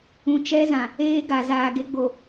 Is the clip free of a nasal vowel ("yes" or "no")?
no